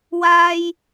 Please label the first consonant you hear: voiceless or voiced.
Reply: voiced